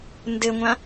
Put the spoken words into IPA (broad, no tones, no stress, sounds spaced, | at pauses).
n d ɘ ŋʷ ã